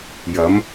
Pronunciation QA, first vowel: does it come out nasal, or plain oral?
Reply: oral